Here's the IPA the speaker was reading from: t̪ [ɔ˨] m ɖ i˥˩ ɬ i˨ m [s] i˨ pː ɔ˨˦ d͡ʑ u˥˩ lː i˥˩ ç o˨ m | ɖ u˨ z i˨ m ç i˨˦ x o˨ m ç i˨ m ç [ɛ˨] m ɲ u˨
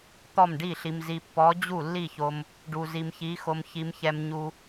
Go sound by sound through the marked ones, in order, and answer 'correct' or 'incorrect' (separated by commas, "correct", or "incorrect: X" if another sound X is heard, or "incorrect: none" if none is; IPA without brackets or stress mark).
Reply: incorrect: ɔ˥˩, incorrect: z, correct